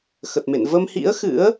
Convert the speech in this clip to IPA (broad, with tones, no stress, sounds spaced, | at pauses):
x ə˨˩ t̚ m ḛ˧˨ n v ə˧ m h ḭ˧˥ ə̯ x ɨ̰˧˥ ə̯